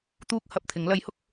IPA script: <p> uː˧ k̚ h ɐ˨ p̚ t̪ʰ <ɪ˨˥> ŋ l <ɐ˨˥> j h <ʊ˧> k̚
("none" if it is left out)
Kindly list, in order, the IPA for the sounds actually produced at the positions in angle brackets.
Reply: t̪, ɪ˨˥, ɐ˨˥, ʊ˧

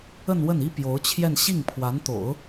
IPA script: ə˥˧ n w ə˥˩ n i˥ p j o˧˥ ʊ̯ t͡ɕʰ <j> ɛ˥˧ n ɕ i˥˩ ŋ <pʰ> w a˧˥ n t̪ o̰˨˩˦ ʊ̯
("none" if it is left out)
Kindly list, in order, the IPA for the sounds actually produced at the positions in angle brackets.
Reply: j, pʰ

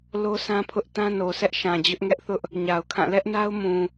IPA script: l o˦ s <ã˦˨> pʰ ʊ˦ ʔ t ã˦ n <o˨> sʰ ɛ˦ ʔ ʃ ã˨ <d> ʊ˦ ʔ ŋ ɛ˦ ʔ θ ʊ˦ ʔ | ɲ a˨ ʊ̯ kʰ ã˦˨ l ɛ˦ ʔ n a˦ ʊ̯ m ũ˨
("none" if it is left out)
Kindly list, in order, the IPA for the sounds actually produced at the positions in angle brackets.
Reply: ã˦, o˨, d͡ʑ

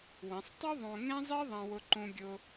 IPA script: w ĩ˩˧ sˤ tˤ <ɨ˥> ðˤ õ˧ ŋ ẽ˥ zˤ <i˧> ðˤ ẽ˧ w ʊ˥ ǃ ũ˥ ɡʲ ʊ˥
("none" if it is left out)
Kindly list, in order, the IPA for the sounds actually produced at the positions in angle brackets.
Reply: i˥, i˥

